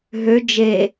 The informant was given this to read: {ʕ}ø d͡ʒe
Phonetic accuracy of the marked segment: incorrect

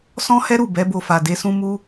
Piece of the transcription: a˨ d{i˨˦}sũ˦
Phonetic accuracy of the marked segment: incorrect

